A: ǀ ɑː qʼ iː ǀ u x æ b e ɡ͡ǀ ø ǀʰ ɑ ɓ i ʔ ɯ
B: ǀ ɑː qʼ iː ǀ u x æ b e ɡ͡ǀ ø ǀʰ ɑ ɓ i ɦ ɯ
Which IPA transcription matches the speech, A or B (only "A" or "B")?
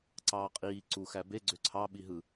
B